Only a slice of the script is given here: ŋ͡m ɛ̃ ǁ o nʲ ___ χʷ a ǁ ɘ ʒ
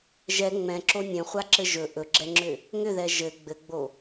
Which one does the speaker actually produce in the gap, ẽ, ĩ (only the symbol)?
ẽ